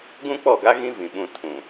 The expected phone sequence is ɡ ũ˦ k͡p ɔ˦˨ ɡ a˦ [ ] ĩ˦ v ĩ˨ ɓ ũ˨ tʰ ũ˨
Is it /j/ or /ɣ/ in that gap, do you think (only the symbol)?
ɣ